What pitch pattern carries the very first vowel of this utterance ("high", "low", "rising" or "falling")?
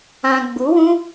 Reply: low